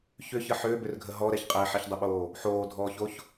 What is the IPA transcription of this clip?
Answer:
ç ʏ ç ə ħ ʏː b ʏ r ɡʱ ə ɦ ɔ ɾ ɛ ç qʼ ɛ ħ ɛ ç dˤ ɪ ɓ oː | ħ oː dʱ ɔː ç o ç

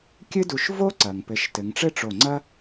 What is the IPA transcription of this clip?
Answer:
kʲ ɨ˥ d u˧˩ ʃ v o˥ ǀ ɐ˩ ŋ p ɘ˩˧ ʃ t ɘ˩˧ ŋ ʈ͡ʂ ɘ˥˧ ʈ͡ʂ o˧˩ ŋ͡ǀ ɐ˥

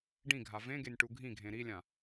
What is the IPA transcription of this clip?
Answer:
ɖ ĩ ɡʱ a v ẽ ɡ e nʲ ʈ u ɡʱ ĩ ɡʱ ẽ ɾ i lʲ ã

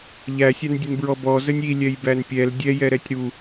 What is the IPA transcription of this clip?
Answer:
ʎ æ sʲ a n dʲ ə n b ɹ ɔ b ɔ z ə nʲ i lʲ ɛ j b æ n pʲ ɛ l dʲ ɛ j ɛ ɾ ɛ tʲ ɾ u

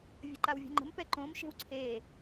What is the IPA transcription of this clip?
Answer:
vʲ ə̤ ǃ a w vʲ o̤ ŋ͡ǃ ə̤ m p ɛ ǃ õ m ʃ e̤ w ǀʰ e

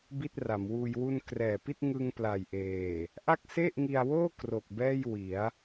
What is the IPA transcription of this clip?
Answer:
b i˥˩ t̚ r a˩˦ m w uː˧ j w u˧ n k r ɛː˨˩ p i˥˩ t̚ ŋ ɯ˧ ŋ p l a˨˩ j ʔ eː˨˩ | ʔ a˥˩ k̚ s e˥˩ ʔ ŋ i˧ a̯ w oː˥˩ k r o˨˩ k̚ b ɛː˥˩ j w i˩˦ a̯

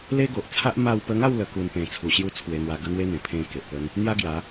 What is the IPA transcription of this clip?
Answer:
l e˦ ɡ o˨ ʔ t͡sʰ a˦ ʔ m a˧ w p ə˧ ŋ a˥˧ w l ə˧ k u˧ n p ẽ˨˩ t͡sʰ u˨˩ ɕ j u˧ t͡sʰ w e˧ n̪ w a˧ ɡ ə˦ n̪ w e˦ n̪ ẽ˨˩ pʰ ẽ˧ k e˨ ʔ p ə˦ n | n̪ j a˦ ɡ j a˨˦

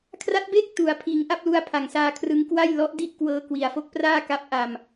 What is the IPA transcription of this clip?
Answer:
kʰ r a˦˥ t̚ b eː˥˩ k̚ t u˩˦ a̯ pʰ iː˩˦ ŋ ʔ a˥˩ p̚ l u˧ a̯ pʰ a˨˩ ŋ s aː˧ kʰ r ɯ˦˥ ŋ k w a˥˩ j l ɔ˦˥ ʔ d i˥˩ ʔ k w ɤː˧ k w i˩˦ a̯ f o˦˥ k̚ p r aː˥˩ k a˦˥ p̚ ʔ a˧ m

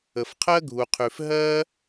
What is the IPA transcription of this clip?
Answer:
ə˧ f qʰ ɜ˥ ɡʱ u˧ qʰ ʉ˧ f ɦ ɜ˥

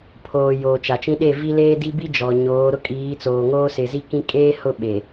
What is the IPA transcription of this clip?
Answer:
pʰ oː˨ j oː˨ t͡ʃ a˨ t͡ʃ ĩ˦ ɗ e˦˨ v i˦ l eː˦ d i˦ b i˦ d͡ʒ ɔ˨ ɲ oː˨˦ ɾ ʊ˦ kʼ iː˨˦ t͡s oː˨ ŋ oː˦ s ɪ˨ z i˦ k ĩ˦ kʼ eː˦ h ʊ˦˨ ɓ e˨

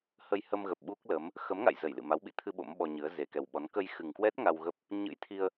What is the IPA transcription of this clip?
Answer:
h ə˧ j h ə˧ m ɣ ə˨˩ p̚ ɓ u˦˥ k̚ l ə˨˦ m | x ə˨˦ m ŋ a̰˧˨ j z ə˧˩ j l ɨ̰˧˨ m a˨˦ w ɓ ḭ˧˨ t̪ʰ ɨ˧ ɓ o̰˧˥ m ɓ ɔ˧ ɲ ɨ˨˦ ə̯ z e˨˩ k ɛ˨˩ w ɓ ɔ˨˦ n k ə˧ j x ɨ˨˩ ŋ k w ɛ˦˥ t̚ ŋ a˧ w ɣ ə˦˥ p̚ | ɲ ɨ̰˧˥ j t̪ʰ i˧ ə̯

